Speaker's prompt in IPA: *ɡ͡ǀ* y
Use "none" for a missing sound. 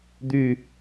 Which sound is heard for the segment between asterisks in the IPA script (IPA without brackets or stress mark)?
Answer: d̪